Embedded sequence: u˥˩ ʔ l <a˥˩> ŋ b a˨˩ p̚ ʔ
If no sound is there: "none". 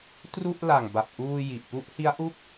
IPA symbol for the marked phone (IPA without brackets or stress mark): a˨˩